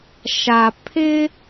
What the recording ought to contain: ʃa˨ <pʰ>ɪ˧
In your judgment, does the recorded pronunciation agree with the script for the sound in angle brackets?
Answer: yes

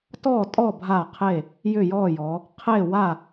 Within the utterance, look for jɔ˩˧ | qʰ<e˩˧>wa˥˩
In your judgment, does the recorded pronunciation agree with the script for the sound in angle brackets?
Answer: no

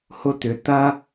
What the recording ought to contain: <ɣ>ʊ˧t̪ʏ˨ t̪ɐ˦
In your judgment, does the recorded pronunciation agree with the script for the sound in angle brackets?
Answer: no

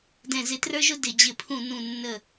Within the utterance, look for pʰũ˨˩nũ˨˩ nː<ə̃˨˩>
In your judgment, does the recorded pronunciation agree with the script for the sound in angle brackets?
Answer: no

